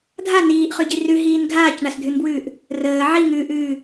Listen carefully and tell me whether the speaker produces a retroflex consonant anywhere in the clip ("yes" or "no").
yes